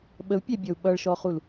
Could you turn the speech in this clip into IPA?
ɓəu̯pʲæbʲɔu̯ ɓʌɭʃɔχul

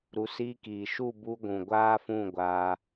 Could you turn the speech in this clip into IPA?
ɾu˧ siː˧kiː˨ʃu˦˨ bu˧ɡʷũ˨ ɡʷaː˦fũ˦˨ɡʷaː˧

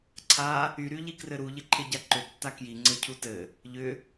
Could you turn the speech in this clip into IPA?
ǀʰa | yɾyʎi krɘɾuʎɪǃʰɪ ɟaǃʏtːa kjiŋ͡ǀɘ cʰutɘ | ʎʏ

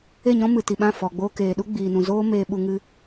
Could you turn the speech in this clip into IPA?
e˦˨ɲɔ̃˦mɨ˨ ti˨ɓã˦˨ fɔ˨ ɡ͡boː˧keː˨ɗu˦ ɡ͡biː˨nũ˨ zoː˦ meː˧ɓu˧ŋɨ˧

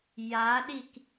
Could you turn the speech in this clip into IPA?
jaɗik

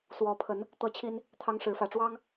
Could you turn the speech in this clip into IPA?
swɔ˨˦pʰə˨˦n | t̪ɤ˥˨t͡ɕʰi˦n | t̪ʰɑ˦ŋ ʂɻ̩˨˦fä˨˩ʈ͡ʂwɑ˦ŋ

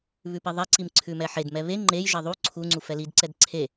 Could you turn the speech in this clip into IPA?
βʉpiðˤɛǀim ǀʰʉmɛħedmɛ βe ŋ͡ǃejʒe ðˤu ǀʰuŋ͡ǀu fɛlidǀɛd ǀʰe

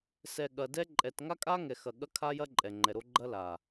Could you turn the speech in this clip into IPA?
sɛ˨ɠɐ˨ dɛ˦ ǃʼɛ˨tŋa˦kʼa˦ ŋɛ˨xɐ˨ɠɐ˦ kʰa˦jɐ˦ ǃʼɛ˨ŋ͡ǃɛ˨ɾo˦ ɡ͡ǃɐ˦la˨

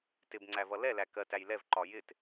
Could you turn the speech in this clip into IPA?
tɪbŋ͡ǀævʌ lɛlæ kɜtæj lɛvǃɒ jɪt

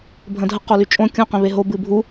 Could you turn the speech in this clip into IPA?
bʱə̃dʱə qolyt͡ʃʼõ kʲũ qẽβeɦo bɨbʱu

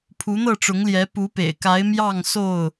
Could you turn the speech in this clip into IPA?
pʰu˨˦n̪ɤ˥˨ʈ͡ʂʊ˨˦ŋljɛ˨˦ pu˨˦pḛ˨˩ɪ̯ka˨˦ɪ̯ mjɑ˥˨ŋso˥˨ʊ̯

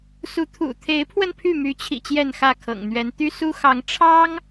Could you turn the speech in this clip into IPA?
su˨˦t̪ʰṵ˨˩ t̪ʰe˨˦ɪ̯pʰwə˧n pʰy˥˨my˨˦t͡ɕʰḭ˨˩ t͡ɕjɛ˥˨nxä˥˨kʰɤ̰˨˩ŋn̪ɥɛ˨˦n t̪y˦su˦ xɑ˨˦ŋ ʈ͡ʂʰɑ˦ŋ

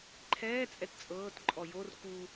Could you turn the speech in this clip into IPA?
ǃʰɛːt͡sʼɛt t͡sʼɤːtǃʼɔ jor ku

